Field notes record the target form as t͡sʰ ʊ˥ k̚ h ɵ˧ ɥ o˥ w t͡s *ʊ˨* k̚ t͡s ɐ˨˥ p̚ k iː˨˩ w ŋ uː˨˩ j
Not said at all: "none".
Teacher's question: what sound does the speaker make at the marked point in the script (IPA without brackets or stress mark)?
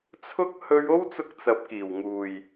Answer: ʊ˧